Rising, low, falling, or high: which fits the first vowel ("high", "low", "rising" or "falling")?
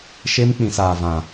high